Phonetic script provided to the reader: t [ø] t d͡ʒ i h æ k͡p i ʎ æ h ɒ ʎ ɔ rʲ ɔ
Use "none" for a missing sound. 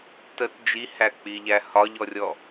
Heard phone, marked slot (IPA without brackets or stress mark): ə